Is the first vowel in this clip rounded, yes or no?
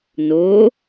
yes